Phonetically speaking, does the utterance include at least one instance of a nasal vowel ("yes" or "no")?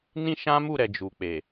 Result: yes